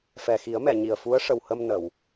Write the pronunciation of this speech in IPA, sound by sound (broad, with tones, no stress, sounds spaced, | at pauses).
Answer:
f ɛ˨˩ x i˨˩˦ ə̯ m ɛ˨˩˨ ɲ i˨˩ ə̯ f u˧˥ ə̯ ʂ ə˨˩ w h əː˧ m n ə˨˩˨ w